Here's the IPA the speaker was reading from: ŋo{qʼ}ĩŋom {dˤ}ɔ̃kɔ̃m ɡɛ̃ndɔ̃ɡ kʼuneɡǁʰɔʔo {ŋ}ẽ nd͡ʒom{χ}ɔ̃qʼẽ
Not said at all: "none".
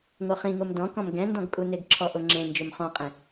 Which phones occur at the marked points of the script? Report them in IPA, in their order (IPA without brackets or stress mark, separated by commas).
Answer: χ, d, ŋ͡ǁ, χ